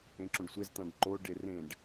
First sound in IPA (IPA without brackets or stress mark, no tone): ẽ